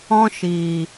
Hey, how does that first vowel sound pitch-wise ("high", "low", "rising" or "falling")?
high